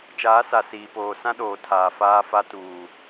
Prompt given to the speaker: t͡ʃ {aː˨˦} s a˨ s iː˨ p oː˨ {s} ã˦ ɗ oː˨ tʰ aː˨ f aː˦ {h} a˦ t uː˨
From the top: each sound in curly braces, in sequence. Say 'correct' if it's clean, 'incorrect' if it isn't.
correct, correct, incorrect: f

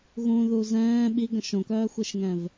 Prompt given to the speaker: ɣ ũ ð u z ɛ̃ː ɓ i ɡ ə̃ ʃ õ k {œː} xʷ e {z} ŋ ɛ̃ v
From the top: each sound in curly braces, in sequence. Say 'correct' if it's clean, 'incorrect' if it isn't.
correct, incorrect: ʃ

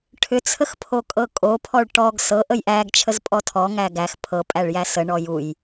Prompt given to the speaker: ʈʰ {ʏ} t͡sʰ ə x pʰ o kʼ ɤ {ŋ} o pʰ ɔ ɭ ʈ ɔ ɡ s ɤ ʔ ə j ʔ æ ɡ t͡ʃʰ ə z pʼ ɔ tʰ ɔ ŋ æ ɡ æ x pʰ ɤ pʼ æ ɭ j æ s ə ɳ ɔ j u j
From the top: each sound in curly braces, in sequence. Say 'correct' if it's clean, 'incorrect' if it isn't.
correct, incorrect: kʼ

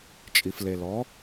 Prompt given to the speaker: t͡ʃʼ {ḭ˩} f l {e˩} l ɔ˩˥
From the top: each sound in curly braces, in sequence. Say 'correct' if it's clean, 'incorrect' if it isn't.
incorrect: i˩, correct

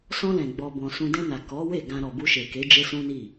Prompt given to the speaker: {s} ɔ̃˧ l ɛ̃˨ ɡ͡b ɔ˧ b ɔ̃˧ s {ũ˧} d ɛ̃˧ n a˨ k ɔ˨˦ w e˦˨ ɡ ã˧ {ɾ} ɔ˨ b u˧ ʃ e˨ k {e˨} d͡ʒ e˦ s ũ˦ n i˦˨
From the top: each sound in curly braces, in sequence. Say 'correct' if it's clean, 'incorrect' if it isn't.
correct, correct, correct, incorrect: e˨˦

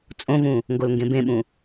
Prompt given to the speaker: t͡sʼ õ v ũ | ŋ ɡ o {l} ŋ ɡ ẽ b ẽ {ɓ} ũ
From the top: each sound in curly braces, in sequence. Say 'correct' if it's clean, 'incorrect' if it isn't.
correct, correct

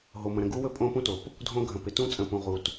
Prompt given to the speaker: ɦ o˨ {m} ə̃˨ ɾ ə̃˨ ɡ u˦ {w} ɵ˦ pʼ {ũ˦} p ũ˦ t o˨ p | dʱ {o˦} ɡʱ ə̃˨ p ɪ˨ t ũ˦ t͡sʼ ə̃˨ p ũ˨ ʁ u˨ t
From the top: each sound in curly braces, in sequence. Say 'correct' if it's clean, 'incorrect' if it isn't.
correct, correct, incorrect: õ˦, incorrect: õ˦

